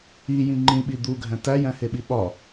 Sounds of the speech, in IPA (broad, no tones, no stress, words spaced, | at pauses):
ijĩ ŋ͡ǃĩɓi d̪uɡʱæ̃ tæ jæ̃heɓiɓɒ